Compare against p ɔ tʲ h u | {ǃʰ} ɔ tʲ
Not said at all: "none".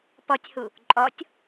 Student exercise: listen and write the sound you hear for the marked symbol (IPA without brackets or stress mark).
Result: ǃʼ